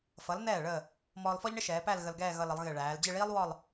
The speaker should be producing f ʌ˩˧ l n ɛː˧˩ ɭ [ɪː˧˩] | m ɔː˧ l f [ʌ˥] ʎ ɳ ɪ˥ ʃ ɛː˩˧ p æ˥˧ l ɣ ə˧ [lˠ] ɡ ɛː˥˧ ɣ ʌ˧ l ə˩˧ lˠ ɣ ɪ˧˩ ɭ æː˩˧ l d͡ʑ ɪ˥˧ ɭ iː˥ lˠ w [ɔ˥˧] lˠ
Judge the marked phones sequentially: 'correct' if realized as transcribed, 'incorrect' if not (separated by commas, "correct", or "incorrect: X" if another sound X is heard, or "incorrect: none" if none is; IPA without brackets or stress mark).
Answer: incorrect: əː˧˩, incorrect: ɔ˥, incorrect: l, correct